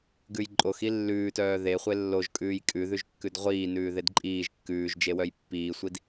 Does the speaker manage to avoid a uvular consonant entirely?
no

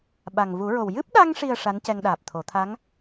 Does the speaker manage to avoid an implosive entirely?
no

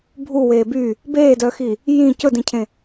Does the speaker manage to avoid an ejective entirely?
yes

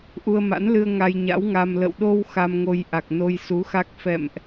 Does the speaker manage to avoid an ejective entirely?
yes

